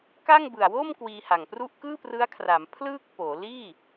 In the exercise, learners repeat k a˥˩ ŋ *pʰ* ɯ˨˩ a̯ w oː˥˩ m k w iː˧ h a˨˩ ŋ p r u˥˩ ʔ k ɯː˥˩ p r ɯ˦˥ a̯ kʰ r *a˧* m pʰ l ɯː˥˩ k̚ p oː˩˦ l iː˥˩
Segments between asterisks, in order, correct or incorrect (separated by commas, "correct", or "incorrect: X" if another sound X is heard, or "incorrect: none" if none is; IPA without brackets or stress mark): incorrect: b, incorrect: a˩˦